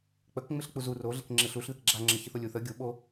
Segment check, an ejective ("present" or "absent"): absent